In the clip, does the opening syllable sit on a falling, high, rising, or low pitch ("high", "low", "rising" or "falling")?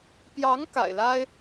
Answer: rising